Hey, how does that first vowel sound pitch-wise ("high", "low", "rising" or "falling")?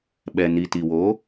low